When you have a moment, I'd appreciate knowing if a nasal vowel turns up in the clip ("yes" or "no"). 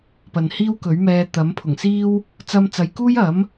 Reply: no